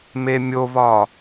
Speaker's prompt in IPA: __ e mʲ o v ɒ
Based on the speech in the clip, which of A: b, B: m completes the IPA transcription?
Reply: B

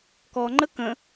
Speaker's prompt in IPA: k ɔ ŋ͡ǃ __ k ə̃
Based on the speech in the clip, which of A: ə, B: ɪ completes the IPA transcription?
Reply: A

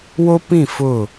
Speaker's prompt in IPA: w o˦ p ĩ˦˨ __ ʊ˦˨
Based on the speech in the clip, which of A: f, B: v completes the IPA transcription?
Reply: A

